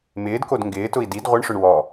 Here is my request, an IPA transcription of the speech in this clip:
mɪːdkod ŋɡɪːtʊi̯ did ʁʷɪɳʂʊɳ wɔ

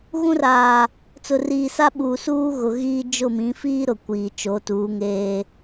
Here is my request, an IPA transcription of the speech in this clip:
ɣũ˦raː˨ | t͡sʊ˨riː˨sa˦ɓuː˨ suː˦ ɣʊ˨ɣiː˦ d͡ʒʊ˦˨mĩ˨˦fiː˦ ɾʊ˨kʷiː˨ t͡ʃo˨˦tuː˨˦ŋeː˦

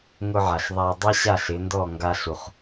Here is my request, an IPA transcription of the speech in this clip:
ŋʊ˧ʕa˩ɬ ðˤa˧ dˤi˥ɕa˥˩ɬɪ˩˥ndɔ˥˩ ŋɡa˧ɬu˩χ

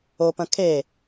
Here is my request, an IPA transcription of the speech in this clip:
opɐ̃ kʰe

